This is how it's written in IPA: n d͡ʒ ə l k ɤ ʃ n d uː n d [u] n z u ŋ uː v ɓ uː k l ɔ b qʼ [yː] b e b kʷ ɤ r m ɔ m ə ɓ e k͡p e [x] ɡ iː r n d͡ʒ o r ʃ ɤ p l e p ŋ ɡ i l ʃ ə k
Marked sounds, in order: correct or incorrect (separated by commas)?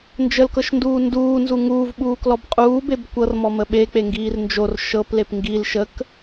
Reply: incorrect, incorrect, incorrect